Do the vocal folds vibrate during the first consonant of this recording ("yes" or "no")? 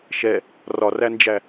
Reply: no